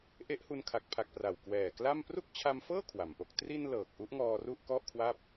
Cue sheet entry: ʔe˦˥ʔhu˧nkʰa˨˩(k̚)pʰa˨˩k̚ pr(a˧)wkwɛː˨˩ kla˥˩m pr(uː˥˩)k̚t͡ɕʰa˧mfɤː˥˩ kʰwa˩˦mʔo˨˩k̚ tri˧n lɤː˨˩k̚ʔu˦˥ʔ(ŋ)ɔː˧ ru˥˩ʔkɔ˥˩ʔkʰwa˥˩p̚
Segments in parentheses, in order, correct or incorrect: correct, incorrect: a˨˩, incorrect: u˥˩, correct

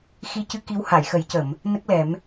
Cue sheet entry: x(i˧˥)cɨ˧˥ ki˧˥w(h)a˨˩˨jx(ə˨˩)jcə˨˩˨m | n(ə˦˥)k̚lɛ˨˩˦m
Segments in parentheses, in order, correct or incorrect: correct, correct, incorrect: ə˨˩˦, correct

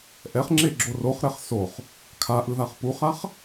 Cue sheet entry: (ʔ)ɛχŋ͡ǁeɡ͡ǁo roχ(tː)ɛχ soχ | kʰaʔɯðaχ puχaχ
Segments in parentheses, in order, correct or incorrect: correct, incorrect: ɾ

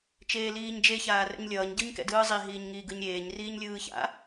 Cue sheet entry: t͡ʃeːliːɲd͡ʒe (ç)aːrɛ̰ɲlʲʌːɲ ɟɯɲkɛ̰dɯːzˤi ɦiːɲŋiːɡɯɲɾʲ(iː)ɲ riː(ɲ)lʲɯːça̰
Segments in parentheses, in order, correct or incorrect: correct, incorrect: eː, correct

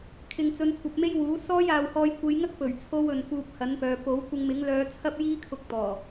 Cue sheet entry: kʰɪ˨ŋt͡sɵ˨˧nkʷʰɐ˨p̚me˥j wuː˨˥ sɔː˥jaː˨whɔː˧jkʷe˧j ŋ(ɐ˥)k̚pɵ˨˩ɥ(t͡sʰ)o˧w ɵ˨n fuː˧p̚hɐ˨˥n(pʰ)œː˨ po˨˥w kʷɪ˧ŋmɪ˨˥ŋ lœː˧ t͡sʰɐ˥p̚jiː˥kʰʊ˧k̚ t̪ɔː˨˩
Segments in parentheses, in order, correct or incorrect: correct, correct, incorrect: p

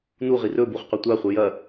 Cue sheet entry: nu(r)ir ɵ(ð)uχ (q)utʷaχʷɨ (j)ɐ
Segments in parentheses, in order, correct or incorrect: incorrect: ʁ, incorrect: b, correct, correct

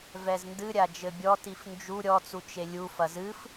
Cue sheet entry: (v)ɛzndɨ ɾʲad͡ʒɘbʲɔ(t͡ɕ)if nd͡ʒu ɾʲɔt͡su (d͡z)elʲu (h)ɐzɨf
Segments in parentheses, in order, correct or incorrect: correct, incorrect: t, incorrect: t͡ʃ, incorrect: f

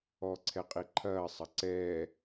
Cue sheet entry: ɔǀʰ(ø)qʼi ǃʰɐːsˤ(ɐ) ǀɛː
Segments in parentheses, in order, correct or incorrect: incorrect: ɛ, correct

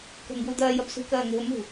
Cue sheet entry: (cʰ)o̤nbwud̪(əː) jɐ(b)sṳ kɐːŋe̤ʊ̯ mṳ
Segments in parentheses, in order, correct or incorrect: incorrect: k, incorrect: ɐː, correct

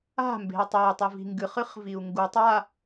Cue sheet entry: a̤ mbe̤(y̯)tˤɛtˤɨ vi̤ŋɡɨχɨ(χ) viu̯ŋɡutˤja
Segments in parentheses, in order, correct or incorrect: incorrect: i̯, correct

